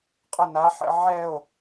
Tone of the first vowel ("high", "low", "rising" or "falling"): falling